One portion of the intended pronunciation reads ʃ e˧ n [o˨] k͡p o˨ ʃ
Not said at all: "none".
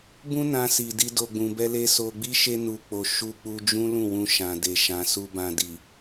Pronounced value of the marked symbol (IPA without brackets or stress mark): u˨